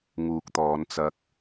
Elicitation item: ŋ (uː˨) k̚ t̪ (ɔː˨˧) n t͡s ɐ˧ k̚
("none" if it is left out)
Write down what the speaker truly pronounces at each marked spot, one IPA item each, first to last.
uː˨, ɔː˨˧

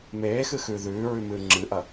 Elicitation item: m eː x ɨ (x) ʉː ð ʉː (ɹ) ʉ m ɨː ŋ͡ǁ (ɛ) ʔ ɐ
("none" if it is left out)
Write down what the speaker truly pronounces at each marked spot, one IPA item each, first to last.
x, ɹ, ɨ

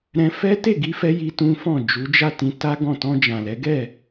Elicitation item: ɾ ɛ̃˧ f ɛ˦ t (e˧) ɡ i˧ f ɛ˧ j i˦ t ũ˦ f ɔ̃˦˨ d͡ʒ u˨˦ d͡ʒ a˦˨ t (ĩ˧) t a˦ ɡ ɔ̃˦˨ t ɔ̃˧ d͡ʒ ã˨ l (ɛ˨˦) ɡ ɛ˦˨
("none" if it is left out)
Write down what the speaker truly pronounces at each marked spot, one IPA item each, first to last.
e˦˨, ĩ˧, ɛ˨˦

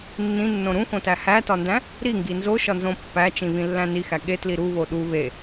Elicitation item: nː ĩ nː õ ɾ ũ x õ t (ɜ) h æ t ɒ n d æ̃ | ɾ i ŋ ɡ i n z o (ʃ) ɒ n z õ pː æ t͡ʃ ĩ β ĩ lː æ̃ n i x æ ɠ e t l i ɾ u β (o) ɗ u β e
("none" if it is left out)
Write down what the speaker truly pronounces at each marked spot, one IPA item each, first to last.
æ, ʃ, o

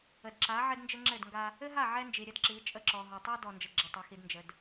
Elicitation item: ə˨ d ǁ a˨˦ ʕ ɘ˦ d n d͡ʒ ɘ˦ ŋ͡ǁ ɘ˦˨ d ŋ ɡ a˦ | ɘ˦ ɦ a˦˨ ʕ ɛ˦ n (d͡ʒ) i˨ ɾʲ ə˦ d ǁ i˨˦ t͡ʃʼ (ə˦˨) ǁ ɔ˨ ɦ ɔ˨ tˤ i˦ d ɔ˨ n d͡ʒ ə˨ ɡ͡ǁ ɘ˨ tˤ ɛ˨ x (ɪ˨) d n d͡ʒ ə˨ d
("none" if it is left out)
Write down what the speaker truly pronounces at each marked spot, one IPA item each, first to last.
d͡ʒ, ə˦˨, i˨

